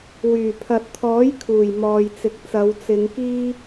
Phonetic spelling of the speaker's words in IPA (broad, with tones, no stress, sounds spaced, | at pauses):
w yː˨˩ pʰ ɐ˨ t̚ t̪ʰ ɔː˨˥ j kʰ uː˨˩ j m ɔː˨ j t͡s ɪ˨ k̚ t͡s ɐ˨˧ w t͡s ɪ˨˧ ŋ k iː˥